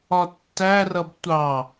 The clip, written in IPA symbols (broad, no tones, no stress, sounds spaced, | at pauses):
ɒ tː æ r ʌ b tʷ ɑ